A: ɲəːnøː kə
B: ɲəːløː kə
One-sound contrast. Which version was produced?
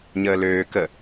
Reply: B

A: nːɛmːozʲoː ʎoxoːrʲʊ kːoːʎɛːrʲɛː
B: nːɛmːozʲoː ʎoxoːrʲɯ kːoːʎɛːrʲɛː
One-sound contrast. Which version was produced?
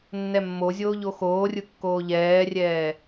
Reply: B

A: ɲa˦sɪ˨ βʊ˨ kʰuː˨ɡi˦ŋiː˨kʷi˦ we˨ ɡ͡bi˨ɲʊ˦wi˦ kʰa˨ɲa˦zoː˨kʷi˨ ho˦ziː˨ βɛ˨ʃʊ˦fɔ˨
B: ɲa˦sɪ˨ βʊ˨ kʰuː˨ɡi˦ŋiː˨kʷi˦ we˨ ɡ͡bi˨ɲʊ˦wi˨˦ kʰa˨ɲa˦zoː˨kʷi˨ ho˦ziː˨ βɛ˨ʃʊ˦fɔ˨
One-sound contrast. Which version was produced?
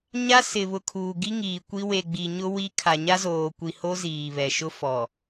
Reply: A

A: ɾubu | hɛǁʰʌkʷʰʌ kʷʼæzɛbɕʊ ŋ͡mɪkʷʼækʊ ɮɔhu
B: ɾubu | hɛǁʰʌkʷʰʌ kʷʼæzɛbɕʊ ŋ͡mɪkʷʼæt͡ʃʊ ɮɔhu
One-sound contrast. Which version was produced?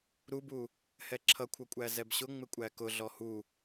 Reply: A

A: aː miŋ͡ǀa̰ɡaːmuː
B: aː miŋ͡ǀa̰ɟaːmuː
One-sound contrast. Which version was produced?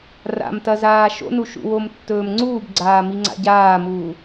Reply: B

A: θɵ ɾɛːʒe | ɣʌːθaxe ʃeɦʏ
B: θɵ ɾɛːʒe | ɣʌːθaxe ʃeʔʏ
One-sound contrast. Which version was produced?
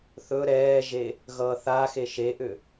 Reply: B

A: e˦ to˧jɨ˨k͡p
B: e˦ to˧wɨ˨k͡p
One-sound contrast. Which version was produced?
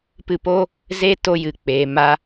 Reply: A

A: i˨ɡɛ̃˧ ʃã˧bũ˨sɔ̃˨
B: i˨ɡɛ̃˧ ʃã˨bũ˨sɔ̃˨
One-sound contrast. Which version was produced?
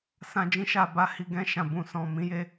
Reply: B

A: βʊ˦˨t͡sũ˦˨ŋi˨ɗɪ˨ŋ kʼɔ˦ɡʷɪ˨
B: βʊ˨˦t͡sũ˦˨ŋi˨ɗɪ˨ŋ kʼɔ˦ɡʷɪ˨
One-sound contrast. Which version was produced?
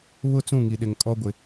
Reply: A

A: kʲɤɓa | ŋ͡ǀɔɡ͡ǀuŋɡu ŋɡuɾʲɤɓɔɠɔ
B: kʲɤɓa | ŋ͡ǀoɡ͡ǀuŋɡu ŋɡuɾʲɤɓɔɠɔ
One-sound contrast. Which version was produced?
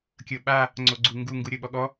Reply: B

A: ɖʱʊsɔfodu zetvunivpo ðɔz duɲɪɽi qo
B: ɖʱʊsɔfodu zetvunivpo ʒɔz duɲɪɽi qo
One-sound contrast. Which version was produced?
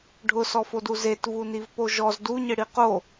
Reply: B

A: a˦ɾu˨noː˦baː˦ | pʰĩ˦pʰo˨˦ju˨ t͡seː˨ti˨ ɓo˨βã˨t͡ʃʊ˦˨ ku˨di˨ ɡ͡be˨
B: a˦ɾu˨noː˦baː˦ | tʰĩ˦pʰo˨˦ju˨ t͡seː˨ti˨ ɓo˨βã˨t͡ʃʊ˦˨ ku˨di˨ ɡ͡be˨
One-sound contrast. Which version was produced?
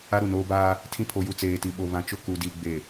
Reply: B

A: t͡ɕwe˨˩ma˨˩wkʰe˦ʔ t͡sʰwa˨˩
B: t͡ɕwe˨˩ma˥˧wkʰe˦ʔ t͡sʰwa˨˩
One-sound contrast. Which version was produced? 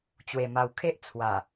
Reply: A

